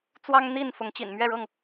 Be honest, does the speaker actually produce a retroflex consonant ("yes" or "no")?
yes